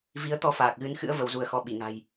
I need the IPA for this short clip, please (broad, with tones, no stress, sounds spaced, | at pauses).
v i˨˦ ə̯ t̪ ɔ˧ f aː˨˩ k̚ ɣ ɨ˨˦ n x ɨ̰˧˥ ə̯ v ə˨˦ w z u˧ ə̯ x ɔ˧ ɓ i˧˩ ŋ a̤˨˩ j